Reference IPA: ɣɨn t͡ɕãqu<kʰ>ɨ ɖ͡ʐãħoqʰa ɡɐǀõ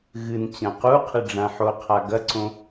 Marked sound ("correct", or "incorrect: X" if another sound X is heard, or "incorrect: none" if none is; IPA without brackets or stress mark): incorrect: qʰ